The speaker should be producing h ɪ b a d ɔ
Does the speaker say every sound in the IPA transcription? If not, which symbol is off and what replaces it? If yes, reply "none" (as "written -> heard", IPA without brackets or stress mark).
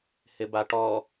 d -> ʈ